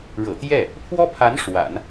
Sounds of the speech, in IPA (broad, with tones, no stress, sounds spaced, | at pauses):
ɻ ɤ̰˨˩ t̪ j ɛ˥˩ | pʰ w ɔ˥ pʰ a˧˥ n ʂ w a̰˨˩˦ n